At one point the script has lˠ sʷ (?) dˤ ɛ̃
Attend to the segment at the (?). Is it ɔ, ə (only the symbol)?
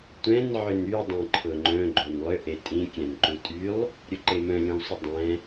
ə